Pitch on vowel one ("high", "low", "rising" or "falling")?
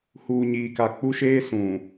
low